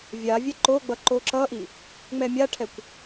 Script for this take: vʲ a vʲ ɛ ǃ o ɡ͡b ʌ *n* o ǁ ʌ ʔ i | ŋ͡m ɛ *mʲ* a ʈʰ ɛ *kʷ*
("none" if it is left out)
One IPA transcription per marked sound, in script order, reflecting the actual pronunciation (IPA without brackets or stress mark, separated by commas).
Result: ǃ, mʲ, kʷ